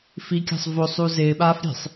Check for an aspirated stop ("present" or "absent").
absent